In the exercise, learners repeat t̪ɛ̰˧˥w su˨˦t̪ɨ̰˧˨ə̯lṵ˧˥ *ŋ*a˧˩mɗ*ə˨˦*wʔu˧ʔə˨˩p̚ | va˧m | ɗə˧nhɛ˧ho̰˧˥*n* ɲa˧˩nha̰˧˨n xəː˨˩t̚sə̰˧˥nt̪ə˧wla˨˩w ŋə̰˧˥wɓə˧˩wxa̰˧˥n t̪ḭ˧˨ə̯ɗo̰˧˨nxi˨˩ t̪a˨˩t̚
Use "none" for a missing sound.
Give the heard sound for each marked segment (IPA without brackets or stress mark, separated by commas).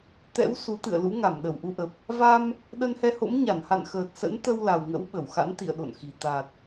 ŋ, ə˧˩, m